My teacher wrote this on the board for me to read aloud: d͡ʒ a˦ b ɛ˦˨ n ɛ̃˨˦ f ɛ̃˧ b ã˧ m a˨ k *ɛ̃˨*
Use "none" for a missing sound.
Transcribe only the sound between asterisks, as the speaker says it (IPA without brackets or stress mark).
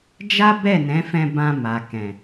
ɛ̃˨